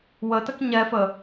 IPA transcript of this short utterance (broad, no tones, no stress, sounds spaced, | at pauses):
w ə t ə k ɲ ɛ f ə